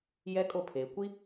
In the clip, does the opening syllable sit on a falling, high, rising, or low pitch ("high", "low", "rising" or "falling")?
high